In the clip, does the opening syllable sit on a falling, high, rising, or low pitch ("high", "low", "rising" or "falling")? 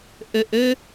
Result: low